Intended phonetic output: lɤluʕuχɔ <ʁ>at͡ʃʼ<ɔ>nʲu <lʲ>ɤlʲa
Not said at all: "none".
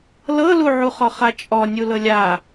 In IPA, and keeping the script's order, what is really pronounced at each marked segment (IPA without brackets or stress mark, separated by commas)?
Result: χ, ɔ, l